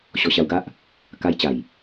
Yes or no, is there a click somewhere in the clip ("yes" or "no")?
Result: no